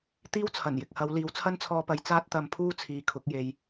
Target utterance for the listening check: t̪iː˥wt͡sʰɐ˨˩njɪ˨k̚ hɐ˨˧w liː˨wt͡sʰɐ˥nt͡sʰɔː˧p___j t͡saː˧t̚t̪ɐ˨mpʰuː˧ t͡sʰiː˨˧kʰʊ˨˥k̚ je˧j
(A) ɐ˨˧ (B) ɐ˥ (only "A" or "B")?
A